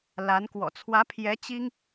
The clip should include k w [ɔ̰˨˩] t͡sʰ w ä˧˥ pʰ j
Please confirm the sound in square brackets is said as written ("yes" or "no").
yes